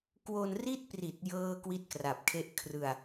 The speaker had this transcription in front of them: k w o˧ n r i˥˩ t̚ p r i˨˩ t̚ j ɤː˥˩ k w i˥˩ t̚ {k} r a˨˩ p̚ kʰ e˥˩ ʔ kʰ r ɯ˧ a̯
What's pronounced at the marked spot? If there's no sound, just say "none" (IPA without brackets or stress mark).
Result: k